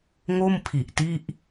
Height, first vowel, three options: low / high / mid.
mid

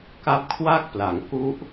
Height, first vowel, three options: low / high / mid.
low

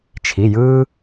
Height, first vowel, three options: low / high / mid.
high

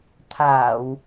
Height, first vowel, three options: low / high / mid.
low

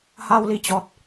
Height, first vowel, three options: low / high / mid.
low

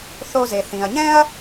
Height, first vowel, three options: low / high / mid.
mid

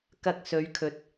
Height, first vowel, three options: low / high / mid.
low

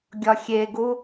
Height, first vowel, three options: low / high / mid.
low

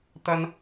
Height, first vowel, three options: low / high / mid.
low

